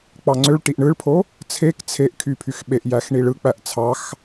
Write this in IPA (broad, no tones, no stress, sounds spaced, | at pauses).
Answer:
k͡p ɑ ŋ͡ǀ ø ɭ ʈ i ʔ ɳ ɯ ɭ pʰ o | t͡sʰ e k t͡sʰ e ʔ kʰ y pʰ y x ɓ e ʔ j æ x ɳ i ɭ ɯ k͡p æ ʔ t͡sʰ ɑ x